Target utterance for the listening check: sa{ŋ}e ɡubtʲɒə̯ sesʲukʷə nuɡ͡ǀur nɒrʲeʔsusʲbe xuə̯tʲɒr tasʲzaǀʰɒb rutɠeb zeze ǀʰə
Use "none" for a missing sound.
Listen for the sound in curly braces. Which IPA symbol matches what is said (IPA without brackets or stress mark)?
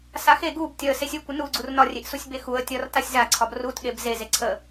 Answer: x